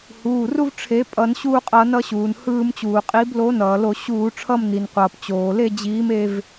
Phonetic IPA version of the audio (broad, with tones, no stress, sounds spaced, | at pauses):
h uː˩˧˩ r u˦ v ʈ͡ʂʰ e˨˦ pʼ ʌ˧˩˧ n ɕ uː˦˨ qʼ ʌ˧˩˧ n ʌ˦˨ ɕ uː˩ n h ɯː˧˩˧ m t͡ɕ uː˩ qʼ i˨˦ b l o˨˦ n ʌː˩ l o˧˩˧ ɕ uː˧˩˧ ʈ͡ʂʰ ʌ˦˨ m n i˩ n qʷ ʌː˩ p t͡ɕ oː˩ l e˦˨ d͡ʑ iː˨˦ m e˦˨ v